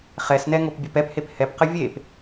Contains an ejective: no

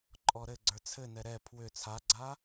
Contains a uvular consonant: no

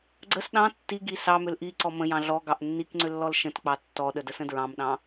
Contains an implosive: yes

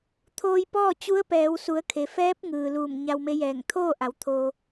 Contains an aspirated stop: yes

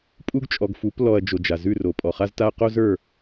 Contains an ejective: yes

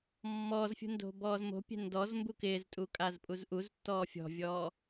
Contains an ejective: yes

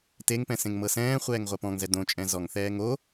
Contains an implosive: no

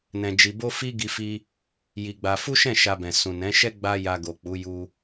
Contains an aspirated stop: no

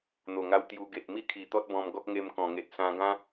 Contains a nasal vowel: yes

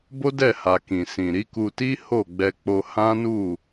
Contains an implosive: no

